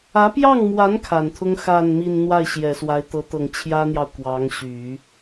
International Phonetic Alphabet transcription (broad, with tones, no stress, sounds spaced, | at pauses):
ä˧˥ p j ɑ˥˩ ŋ m w a˧˥ n kʰ a˨˩ n t̪ʰ ʊ˥ ŋ x a˥˧ n m i˥˧ n n̪ w a˥˩ ɪ̯ ɕ j ɛ˨˩ s w a˧˥ ɪ̯ t̪ ɤ˧˥ t̪ ɤ˨˩ ŋ t͡ɕʰ j ä˥ n̪ j ɑ˨ ʊ̯ k w ɑ˧˥ ŋ ɕ y˨˩˦